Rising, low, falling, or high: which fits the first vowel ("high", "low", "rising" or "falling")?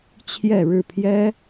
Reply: falling